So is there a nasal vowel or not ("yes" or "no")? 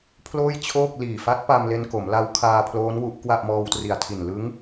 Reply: no